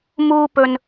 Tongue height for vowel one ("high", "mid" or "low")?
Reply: high